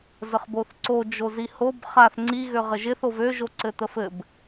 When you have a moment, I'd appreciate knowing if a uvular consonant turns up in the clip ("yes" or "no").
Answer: yes